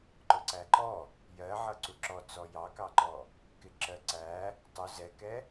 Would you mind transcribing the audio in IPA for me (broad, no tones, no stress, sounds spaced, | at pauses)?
ǃ ʊ ǀ æ ǃ ɔ | j ɜ ʕ ʌ ǀ u ǁ ɔ t͡s ɔ j ɑ k ɑ ǃ ɔ | k ɪ ǁ ɜ ǀ æ | tˤ u z ɛ k ɛ